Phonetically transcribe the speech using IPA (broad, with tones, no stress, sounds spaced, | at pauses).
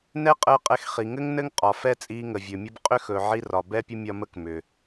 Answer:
n ɛ˦ qʼ əː˧ qʼ ɛ˧ x χ i˨ ŋ ɘ˦ ŋ n ɘ˦ ŋ qʼ ɒ˨ f ɛ˦ t͡sʼ iː˧ ŋ ə˨ vʲ ɵ˨ mʲ ə˦ b qʼ ʏ˦ x ɵ˨ ʕ i˧ r ɒ˨ b ɛ˦ pʲ ə˦ mʲ ɒ˧ m ə˦ k m ʏ˨